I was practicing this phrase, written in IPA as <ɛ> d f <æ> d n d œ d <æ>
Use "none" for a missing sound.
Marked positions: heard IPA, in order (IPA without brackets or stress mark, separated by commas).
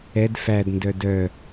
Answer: ɛ, æ, œ